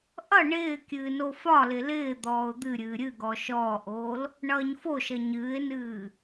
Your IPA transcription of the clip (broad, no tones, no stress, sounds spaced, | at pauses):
ʔ ʌ ɳ ɪː kʲ ɨː n o f ɒ l ɪ l ɪː d̪ ɔː ʊ̯ d̪ ɨ ɾʲ ɨː ɾʲ ɨ ɡ ɔ ʃ ɔː ʔ oː l | ɳ ʌː ɲ f o ʃ ʌ ɲ ɨː ɪ̯ n ɨː